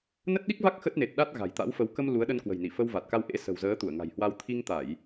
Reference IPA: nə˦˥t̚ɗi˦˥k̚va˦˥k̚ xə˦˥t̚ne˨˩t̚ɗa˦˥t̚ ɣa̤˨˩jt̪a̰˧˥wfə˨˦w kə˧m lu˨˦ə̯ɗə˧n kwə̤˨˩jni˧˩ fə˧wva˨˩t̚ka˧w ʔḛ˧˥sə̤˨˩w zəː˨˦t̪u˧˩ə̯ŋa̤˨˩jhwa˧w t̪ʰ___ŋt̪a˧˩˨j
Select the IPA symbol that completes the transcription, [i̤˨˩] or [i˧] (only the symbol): i˧